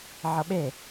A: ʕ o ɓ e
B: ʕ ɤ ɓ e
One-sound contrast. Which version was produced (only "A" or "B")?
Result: B